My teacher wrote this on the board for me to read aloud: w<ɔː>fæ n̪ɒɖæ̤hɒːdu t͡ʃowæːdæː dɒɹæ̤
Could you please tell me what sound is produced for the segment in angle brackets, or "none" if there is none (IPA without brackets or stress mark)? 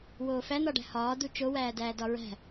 oː